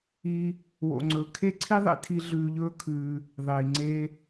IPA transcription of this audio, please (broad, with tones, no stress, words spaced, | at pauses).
i˦ | wo̰˧ŋ͡ǀɵː˧ kʰe˦ǀʰi˦ðˤḛ˧tʰi˧ ɮʉː˧ʎɵː˦kʰʉː˧ | ðˤiː˨ŋ͡ǀe˦